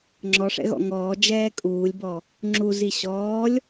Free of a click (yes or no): no